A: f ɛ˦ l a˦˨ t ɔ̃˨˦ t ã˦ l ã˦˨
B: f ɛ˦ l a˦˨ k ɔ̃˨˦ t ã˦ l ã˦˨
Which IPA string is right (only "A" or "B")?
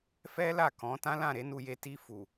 B